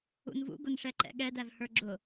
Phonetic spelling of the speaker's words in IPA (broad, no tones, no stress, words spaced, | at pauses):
ṵnvṵ ɡʊnʂɛǃɛ̰ɠɛd ævhə˞ɡ͡ǁʊ